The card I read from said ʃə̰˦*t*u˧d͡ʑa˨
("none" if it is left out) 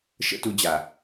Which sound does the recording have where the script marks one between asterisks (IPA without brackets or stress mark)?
t